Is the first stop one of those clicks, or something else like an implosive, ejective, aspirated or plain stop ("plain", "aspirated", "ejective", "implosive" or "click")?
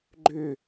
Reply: click